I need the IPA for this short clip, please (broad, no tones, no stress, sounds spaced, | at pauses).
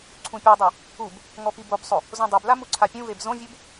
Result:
ǀʰ ũ pʲ ɤ dˤ ɛ | u b | ŋ ɔ p i b o b sˤ o | z õ dˤ e b l a m u ǀʰ a pʲ ũ v e b z õ vʲ u b